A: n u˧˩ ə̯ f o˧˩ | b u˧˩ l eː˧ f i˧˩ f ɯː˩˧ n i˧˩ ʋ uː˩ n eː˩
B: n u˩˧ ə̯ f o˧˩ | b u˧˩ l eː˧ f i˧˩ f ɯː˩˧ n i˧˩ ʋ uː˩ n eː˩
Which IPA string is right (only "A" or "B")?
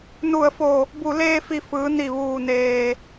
A